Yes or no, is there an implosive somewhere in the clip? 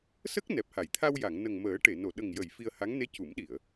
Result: yes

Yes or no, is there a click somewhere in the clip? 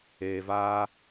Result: no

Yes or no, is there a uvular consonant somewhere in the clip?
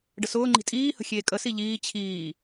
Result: no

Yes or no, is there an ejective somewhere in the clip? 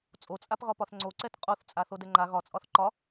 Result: yes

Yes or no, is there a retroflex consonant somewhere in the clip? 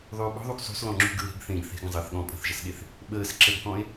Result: no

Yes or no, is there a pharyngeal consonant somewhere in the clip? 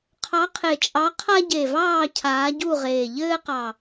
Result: no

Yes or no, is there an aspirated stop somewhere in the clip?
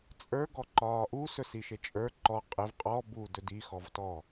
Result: no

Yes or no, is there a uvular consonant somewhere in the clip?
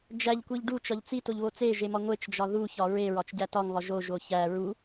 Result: no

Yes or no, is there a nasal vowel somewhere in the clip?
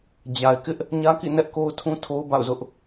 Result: yes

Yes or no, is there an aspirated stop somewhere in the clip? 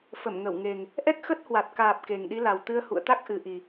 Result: no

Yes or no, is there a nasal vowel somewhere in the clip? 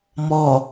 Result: no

